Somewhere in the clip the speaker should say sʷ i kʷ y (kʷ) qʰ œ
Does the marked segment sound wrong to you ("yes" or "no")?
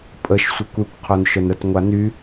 no